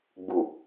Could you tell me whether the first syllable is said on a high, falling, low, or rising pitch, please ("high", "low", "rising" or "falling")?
low